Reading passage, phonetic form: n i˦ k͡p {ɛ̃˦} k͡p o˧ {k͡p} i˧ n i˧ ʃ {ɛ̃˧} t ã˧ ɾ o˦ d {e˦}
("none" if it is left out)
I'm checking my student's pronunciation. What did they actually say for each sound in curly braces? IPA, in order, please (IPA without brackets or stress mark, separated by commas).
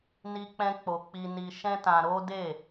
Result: ɛ̃˦, k͡p, ɛ̃˦, e˦˨